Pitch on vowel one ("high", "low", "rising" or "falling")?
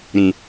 low